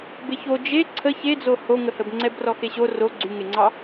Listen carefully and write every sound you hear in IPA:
beço d͡ʒe ǀʰə çed͡zo hoŋəhəbŋ͡ǀɛb rɔxeɕo ro ɡ͡ǀyŋeŋ͡ǀɑ

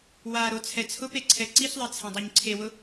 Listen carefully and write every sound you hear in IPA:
waɾo t͡sʰɛt͡sʰʊpe ǀʰɛǀiɬðˤe t͡sʰãdˤoɲǀʰewʊ

